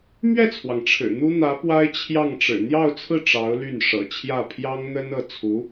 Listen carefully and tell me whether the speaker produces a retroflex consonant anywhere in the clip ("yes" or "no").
yes